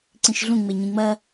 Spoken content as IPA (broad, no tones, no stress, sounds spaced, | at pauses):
ǀ ĩ ʃ ɮ ũ ŋ͡m e ɲ ĩ ŋ͡m ɐ